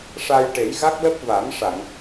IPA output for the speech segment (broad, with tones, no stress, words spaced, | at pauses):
ʂa˧jʈe˨˩˦jɣa˦˥k̚ lə˦˥k̚va˨˩˦m ʂa˨˩˨ŋ